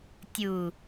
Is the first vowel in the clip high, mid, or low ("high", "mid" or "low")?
high